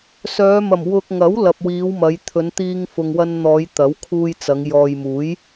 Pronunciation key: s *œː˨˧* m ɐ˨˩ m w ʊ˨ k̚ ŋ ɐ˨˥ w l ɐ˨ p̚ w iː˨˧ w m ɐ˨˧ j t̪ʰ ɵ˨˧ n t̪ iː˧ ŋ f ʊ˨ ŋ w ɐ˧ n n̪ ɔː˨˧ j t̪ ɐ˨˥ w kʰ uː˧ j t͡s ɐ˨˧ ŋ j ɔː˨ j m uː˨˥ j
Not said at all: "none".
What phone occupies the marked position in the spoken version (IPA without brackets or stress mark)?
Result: œː˨˧